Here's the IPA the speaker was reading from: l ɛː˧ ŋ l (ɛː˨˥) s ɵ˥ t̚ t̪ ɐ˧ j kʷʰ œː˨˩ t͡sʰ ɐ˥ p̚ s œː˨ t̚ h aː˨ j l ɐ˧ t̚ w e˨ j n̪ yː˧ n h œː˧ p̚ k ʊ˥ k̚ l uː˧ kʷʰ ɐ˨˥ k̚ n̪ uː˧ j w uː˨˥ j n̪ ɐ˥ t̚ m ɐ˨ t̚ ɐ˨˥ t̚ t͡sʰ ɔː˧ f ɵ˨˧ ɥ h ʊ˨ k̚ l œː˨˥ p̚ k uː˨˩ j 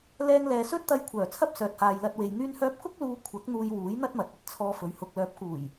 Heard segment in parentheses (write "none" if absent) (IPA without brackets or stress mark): ɛː˨